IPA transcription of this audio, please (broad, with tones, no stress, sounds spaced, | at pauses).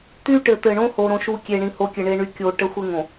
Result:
t̪ y˦ ʈ ɘ˨ t̪ ɘ˨ ɳ õ˦ h o˦ ɾ õ˦ ʃ u˦ kʲ e˨ ɳ ĩ˨ h o˨˦ kʲ ɘ˨ ɳ e˦ ɳ y˦ kʲ o˨ ʈ ə˦ xʷ ɘ˦ ŋ õ˨